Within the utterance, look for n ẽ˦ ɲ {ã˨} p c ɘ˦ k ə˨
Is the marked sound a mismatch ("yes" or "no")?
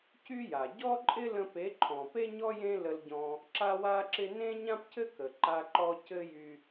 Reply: yes